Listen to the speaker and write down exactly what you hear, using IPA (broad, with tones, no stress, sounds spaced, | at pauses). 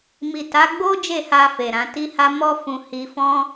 m i˨ t a˨˦ ɡ͡b o˦ d͡ʒ e˦˨ h a˧ f e˨ ɾ ã˨˦ t i˦ h a˦ m ɔ˦ f ũ˧ h i˧ f ɔ̃˦